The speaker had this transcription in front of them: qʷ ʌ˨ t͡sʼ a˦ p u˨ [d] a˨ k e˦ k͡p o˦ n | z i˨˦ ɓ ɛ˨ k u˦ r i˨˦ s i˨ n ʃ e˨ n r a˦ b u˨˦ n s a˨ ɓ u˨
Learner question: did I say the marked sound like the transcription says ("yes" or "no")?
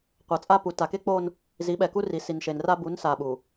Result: no